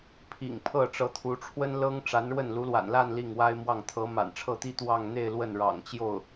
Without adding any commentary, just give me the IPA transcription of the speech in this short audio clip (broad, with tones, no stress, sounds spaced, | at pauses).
pʰ ḭ˨˩ ŋ pʰ ɤ˥˩ ʈ͡ʂ ɤ˧˥ t̪ʰ u˧˥ ʈ͡ʂʰ w ə˥ n l ɤ˥ ŋ ʈ͡ʂ a˧˥ n ɻ w ə˥˩ n l u˧˥ l w a̰˨˩ n l a˥˧ n l i˥˩ ŋ w a˥ ɪ̯ m w ɑ˥˩ ŋ t̪ʰ ɤ˧˥ m a̰˨˩ n ʈ͡ʂʰ ɤ˥˩ t̪ i˥ t̪ w ɑ˥˧ ŋ n̪ e˥˧ ɪ̯ l w ə˥˩ n ɻ ɑ̰˨˩ ŋ t͡ɕ j o˥˩ ʊ̯